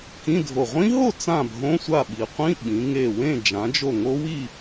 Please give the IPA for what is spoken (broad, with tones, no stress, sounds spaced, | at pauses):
k ĩ˧˥˧ dʱ o˧˩ ʁʷ ĩ˦˥ ɦ o˥˨ t͡s ã˥˨ bʱ õ˧˥˧ sʷ a˥˨ ɓ i˩˧ qʷ ĩ˧˥˧ ɓ ĩ˩˧ ŋ e˧˩ w ẽ˥˨ d͡ʒ ã˩˧ d͡ʒ o˧˩ ŋ o˦˥ w i˥˨